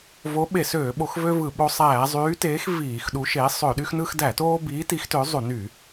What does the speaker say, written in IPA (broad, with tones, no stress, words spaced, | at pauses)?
vo˨˥ ɓe˧˩˧søː˧˩˧ɓo˧˩˧xvø˦ vɯ˧˩˧ɓo˦ sˤæː˧˩˧zˤyː˨˥teː˨˥x viː˧˩˧x ɗu˨˥ʃeː˨˥ sˤø˧˩˧ɗy˦xnɯ˦x dæ˧˩˧toː˦biː˨˥ ti˨˥xtø˨˥ zˤu˧˩˧ny˧˩˧